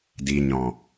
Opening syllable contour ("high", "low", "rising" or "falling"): low